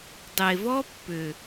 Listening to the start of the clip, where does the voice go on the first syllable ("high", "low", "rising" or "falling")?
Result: low